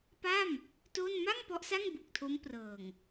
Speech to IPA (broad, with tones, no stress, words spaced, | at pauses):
pa˥˩m | to˥˩n ma˥˩ŋ pɔ˦˥ʔsa˥˩ŋ bu˨˩k̚tʰo˦˥mprɤː˨˩ŋ